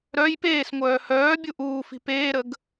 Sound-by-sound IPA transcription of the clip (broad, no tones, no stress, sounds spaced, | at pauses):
ɾ œ j p eː s ŋʷ œː h œː bʲ u ʔ uː f i̤ p eː ɾ ə ɡ